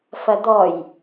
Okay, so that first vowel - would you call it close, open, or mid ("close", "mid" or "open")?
open